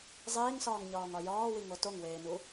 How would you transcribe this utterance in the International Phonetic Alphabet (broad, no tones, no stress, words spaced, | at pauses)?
zˤiːŋsɒːŋɲɒːŋɒ jɒːwiŋo toŋweːnu